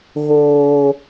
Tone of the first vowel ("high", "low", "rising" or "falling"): low